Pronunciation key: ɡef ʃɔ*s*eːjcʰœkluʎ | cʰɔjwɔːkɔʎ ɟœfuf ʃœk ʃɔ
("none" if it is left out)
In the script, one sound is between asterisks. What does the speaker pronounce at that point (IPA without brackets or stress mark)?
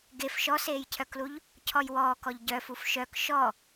s